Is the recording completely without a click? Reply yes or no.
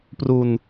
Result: yes